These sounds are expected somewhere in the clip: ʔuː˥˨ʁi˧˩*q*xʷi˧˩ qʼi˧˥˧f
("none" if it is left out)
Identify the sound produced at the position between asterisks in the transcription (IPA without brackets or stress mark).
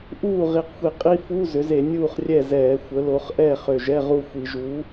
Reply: q